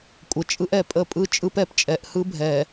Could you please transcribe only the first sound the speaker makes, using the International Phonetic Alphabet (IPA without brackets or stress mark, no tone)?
kʷʼ